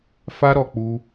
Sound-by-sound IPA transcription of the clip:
fa˦ ɾɔ˧k͡pu˦

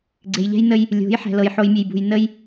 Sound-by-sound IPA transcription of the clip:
ɡ͡ǀe˨jʎɛ̤˦jnə˦j | lʲo̤˨˦j ħɛ̤˨lɤ˨jħo˨jmʲe˨j bṳ˨jnə˦j

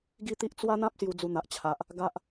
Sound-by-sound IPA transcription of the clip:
ɡi˥˧t̪i˦ʔ t͡swa˦n̪ã˦p̚ sju˧d͡zu˧n̪a˨ʔ t͡ɕʰa˨ʔ | ɡa˦ʔ

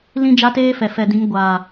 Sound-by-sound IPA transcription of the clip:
lĩ˦ d͡ʒa˦teː˦fɛ˨ fɛ˨dĩ˨˦ŋɡʷaː˨

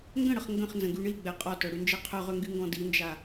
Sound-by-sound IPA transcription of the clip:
ŋɡə̃ɽəχ ŋɡə̃χnzə̃ɡy ɳiɡ͡bɛ qʼɔtœɽynd͡ʒɛ qʰœʁøŋɡyŋɡɔ̃ dind͡ʒa

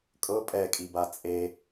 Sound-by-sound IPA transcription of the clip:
kʼɤ pʼɛkʼiba t͡sʼe

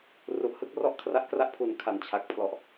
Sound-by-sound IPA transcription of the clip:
ru˨˩ʔhɯ˥˩k̚ rɔ˥˩ʔkʰra˦˥ʔkra˥˩ʔpʰu˨˩n kʰa˩˦nt͡ɕʰa˨˩k̚pʰlɔ˨˩ʔ

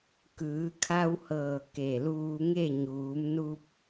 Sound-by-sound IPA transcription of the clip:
kɯː˩˧kʰa˧whɤː˧˩ ke˧˩luː˧ŋe˥˨ ɲuː˩˧mnu˧p̚

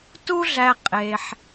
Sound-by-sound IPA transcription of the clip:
tu˦ɮæ˧ qʼe˧ħ

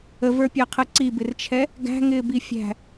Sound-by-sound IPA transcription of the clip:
əvə˞pʲɑqʰə ǀibɪrt͡ʃʰɛ | ɡæ̤ŋɪːbi fʲæ̤

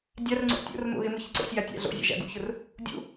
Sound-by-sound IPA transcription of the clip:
dʲarŋ͡ǀo̰ tʲo̰rmo̰ ɣɪmʊ çɪǀo̰sʲja tʲa̰ɮo̰zʲa̰ ʒa̰ɡṵçʊr | dʲṵ

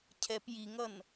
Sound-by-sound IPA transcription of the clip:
cʰɛp jiŋʌn

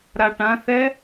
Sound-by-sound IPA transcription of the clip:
ɾaʈãθɛ

